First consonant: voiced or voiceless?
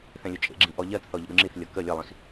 voiceless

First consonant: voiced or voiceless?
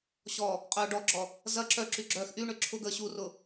voiceless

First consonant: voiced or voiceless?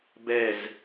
voiced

